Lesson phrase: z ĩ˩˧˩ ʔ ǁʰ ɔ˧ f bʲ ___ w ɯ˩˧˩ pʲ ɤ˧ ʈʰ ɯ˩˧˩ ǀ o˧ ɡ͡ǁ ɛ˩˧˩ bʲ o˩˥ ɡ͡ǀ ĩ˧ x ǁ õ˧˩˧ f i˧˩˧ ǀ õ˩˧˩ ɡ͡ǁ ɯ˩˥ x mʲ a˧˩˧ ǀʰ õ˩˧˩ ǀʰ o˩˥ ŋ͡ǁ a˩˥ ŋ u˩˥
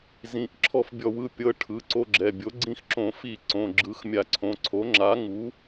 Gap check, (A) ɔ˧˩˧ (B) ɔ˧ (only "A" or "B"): A